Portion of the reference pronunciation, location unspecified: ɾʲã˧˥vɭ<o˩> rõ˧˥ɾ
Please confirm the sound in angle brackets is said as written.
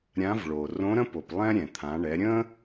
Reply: yes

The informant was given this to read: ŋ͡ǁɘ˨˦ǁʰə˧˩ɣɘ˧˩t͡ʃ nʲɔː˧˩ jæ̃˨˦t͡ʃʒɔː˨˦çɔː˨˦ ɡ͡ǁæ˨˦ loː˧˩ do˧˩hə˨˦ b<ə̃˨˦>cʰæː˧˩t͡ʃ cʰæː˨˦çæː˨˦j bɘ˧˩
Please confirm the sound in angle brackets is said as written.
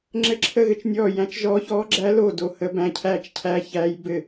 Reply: no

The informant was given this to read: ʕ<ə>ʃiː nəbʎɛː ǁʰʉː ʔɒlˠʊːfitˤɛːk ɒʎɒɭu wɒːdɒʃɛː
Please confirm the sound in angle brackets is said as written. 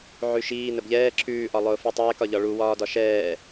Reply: no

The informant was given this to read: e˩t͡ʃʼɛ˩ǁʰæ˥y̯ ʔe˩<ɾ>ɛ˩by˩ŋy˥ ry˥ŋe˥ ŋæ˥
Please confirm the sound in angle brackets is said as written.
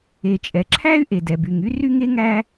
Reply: no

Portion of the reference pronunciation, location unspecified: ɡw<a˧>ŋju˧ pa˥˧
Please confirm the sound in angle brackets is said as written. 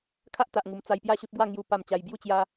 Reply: no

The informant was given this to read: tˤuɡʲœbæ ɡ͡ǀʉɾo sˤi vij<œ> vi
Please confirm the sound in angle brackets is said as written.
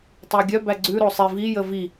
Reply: no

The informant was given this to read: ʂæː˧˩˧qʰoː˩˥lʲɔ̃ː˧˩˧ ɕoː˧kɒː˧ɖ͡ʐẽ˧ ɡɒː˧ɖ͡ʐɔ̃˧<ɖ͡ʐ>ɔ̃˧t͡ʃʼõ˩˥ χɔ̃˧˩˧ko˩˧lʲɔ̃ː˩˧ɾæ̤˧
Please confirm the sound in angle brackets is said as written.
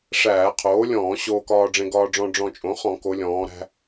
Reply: yes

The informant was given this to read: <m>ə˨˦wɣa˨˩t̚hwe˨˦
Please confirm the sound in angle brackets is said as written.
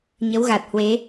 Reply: no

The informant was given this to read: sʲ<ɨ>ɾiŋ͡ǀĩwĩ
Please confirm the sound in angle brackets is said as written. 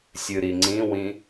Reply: yes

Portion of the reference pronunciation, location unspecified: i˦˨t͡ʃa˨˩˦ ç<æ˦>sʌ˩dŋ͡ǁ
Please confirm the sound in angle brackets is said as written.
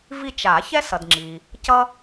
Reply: no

